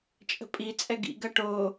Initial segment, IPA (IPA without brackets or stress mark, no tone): t͡ʃʼ